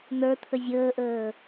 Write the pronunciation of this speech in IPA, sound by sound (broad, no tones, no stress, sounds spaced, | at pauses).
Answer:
n̪ ə˞ t̪ʰ ə zʲ əː ʔ əː